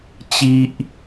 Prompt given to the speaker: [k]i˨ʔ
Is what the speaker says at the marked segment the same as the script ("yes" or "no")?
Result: no